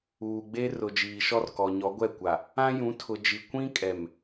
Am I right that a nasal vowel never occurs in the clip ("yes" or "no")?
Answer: no